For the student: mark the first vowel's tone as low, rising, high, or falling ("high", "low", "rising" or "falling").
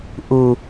high